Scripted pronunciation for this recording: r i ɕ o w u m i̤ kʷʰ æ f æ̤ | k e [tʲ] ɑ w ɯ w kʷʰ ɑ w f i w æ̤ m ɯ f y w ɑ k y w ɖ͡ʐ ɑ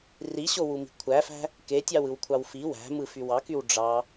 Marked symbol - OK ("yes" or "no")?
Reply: yes